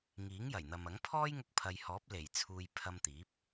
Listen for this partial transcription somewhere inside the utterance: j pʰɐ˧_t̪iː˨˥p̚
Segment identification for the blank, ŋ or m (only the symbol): m